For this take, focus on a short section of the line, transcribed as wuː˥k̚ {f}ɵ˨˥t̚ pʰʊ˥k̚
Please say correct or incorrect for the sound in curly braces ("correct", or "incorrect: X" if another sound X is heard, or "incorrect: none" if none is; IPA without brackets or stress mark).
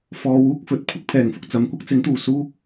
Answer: correct